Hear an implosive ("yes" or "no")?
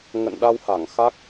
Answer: yes